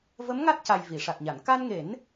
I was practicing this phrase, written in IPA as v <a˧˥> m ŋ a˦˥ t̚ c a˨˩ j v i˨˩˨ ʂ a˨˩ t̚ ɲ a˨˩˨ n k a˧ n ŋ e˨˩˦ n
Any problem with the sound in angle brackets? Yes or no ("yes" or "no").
yes